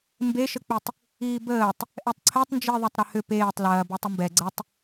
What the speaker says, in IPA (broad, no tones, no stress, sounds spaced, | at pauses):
m b e ʃ ə k͡p i tˤ | iː b əː tˤ | ʔ ɛ tˤ ǀʰ ɛ tˤ n d͡ʒ i ðˤ ɐ tˤ ɾ ə h ʏ p eː tˤ l ɐː b e tˤ ʏ m b ɛ ɡ͡ǀ ə tˤ